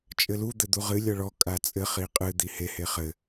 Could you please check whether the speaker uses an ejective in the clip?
yes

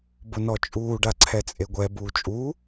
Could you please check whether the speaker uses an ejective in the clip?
yes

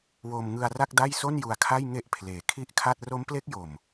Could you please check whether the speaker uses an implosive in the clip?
no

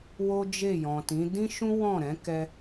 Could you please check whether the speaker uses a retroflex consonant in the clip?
no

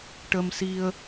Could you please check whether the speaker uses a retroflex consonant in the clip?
yes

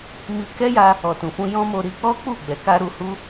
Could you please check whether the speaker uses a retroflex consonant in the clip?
no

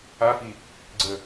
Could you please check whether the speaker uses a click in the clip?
yes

